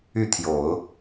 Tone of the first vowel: falling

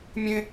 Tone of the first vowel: high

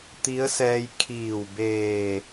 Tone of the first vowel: rising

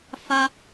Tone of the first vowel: high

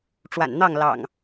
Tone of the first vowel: low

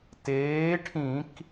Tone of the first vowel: rising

